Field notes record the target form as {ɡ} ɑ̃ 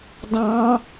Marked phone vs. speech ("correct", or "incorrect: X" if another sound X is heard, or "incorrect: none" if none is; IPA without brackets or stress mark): incorrect: d